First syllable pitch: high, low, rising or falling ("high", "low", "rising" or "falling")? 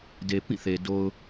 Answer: low